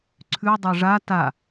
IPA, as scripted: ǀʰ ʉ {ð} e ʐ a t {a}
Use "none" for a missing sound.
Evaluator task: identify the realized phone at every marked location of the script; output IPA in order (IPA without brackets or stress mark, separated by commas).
dˤ, a